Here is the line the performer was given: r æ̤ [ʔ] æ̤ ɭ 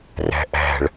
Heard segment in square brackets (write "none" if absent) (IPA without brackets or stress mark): ʔ